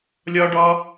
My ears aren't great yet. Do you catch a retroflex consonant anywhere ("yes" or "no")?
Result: yes